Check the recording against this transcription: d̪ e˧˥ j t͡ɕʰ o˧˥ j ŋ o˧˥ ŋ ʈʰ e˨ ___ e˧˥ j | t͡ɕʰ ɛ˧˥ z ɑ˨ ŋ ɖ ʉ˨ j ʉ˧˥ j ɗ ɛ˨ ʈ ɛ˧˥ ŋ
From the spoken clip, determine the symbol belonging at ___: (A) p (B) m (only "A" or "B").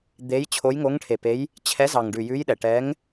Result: A